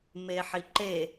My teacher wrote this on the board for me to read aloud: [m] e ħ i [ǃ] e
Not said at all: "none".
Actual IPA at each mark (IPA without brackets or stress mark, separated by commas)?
m, ǃ